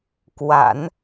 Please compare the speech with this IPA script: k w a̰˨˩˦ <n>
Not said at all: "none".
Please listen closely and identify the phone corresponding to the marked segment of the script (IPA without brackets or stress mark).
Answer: n